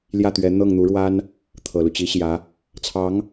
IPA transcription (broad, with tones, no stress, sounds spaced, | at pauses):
l j ä˥˩ t̪ ɥ ɛ˧˥ n̪ ɤ˥˩ ŋ n̪ u˧˥ ɻ w a˥ n | t̪ʰ ɤ˨˩ l u˦ t͡ɕ i˧˥ ɕ j ä˧˥ | t͡sʰ ɑ˧˥ ŋ